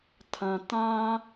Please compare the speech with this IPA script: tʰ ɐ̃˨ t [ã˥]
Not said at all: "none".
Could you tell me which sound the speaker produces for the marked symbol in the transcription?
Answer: ã˥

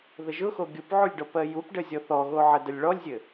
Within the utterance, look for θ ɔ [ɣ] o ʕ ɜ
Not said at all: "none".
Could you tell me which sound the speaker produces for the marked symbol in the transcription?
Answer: ɣ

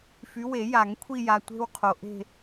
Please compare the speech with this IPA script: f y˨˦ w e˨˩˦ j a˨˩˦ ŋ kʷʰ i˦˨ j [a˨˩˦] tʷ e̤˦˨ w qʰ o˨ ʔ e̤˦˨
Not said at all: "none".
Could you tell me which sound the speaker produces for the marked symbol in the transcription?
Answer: a˨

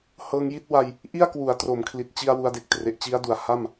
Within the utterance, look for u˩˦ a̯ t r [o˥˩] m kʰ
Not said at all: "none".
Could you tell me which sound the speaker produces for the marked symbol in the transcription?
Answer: o˩˦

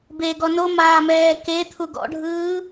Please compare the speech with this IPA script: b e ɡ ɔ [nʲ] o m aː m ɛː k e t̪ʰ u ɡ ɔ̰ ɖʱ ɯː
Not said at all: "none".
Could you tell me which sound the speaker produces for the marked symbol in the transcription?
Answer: n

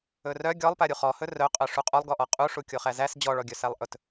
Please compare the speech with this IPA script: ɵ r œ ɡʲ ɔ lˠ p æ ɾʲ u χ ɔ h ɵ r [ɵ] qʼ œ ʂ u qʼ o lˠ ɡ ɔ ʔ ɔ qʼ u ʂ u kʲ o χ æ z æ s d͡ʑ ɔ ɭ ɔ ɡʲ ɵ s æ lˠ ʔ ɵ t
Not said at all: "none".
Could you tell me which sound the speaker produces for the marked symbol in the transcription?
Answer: œ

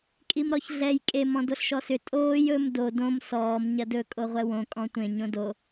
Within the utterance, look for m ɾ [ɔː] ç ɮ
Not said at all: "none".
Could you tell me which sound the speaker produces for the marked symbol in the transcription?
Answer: ɔ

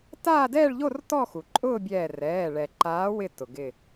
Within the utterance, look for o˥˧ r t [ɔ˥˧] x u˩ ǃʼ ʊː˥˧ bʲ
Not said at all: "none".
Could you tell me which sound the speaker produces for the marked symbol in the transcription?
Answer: ɔ˥˧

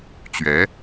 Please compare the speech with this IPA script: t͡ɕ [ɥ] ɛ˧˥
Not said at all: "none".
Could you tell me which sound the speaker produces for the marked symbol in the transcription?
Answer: ɥ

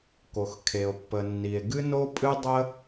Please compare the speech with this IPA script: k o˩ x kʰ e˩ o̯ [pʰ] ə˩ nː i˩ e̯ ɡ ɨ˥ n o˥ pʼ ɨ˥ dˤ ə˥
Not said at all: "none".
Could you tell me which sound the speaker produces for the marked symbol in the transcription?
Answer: pː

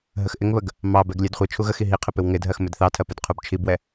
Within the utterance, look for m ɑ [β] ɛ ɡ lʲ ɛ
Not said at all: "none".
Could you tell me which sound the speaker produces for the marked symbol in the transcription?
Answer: b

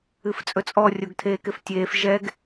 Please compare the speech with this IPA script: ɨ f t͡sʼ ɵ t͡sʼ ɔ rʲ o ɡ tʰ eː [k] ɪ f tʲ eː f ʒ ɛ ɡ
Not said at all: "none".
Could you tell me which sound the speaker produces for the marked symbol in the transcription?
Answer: k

